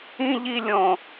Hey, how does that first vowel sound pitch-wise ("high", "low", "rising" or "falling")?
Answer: high